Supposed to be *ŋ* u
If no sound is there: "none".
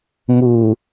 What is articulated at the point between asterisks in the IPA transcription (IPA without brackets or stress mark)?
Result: m